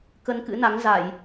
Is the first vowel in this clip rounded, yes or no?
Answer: no